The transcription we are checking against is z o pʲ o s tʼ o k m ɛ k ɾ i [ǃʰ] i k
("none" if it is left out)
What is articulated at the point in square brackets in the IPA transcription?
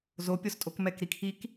kʰ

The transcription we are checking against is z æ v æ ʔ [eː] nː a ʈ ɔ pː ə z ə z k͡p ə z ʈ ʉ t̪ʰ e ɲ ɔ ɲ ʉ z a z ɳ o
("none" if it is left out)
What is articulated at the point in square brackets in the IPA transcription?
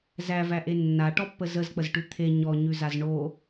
e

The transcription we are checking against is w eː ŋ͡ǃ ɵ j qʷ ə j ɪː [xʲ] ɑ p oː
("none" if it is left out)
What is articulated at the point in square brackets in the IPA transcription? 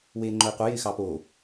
x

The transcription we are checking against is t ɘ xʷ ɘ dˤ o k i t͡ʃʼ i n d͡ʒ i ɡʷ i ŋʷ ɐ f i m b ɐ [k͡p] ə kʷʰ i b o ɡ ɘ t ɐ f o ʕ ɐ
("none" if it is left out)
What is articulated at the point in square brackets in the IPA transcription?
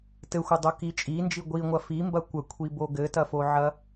kʷ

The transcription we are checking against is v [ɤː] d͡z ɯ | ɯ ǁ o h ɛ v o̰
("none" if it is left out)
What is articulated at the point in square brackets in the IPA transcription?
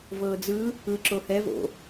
ɤː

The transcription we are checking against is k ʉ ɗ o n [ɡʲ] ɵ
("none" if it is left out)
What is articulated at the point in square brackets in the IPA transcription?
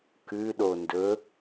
d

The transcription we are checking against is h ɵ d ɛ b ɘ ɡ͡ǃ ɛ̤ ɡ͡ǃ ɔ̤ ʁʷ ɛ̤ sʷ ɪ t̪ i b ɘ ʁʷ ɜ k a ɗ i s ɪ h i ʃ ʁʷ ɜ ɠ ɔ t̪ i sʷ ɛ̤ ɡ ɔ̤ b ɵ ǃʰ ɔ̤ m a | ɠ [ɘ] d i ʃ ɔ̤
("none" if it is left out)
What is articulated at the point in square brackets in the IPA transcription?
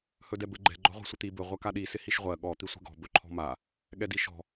ɛ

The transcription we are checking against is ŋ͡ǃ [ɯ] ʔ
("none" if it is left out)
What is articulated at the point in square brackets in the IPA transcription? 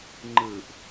ɯ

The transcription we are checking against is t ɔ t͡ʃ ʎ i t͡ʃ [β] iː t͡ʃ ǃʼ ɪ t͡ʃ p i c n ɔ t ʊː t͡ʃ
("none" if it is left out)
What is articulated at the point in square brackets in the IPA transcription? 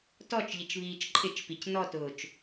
β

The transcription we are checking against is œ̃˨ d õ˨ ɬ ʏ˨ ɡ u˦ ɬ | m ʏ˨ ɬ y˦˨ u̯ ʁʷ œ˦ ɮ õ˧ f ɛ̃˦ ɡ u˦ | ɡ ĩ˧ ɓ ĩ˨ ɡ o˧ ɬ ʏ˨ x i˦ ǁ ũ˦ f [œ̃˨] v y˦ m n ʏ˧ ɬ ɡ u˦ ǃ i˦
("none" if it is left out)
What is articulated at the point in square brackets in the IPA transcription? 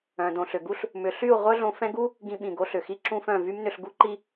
œ̃˦˨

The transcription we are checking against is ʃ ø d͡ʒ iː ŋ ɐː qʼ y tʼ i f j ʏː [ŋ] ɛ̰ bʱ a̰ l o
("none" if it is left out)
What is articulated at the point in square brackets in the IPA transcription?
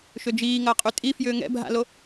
ŋ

